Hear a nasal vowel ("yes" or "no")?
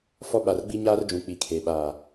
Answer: yes